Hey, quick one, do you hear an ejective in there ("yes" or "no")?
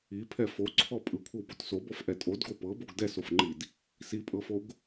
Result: yes